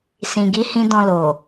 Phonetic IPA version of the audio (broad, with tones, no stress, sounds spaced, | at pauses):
s ĩ˧ ɡ i˦ h ĩ˦ d ɔ̃˧ l o˨